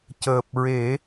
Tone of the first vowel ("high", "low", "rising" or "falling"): low